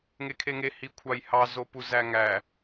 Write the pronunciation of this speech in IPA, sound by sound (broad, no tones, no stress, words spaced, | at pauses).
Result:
ŋekʰeŋe hikʷʰɑjhɑ zopuzæŋæ